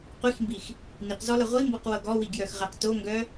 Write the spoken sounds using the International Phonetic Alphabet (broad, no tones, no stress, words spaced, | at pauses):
qʷixmbix | niqzɔlʌ ʁʷimbɤqwɤ ɡɔwiɡjœxʁɛq toŋɡœ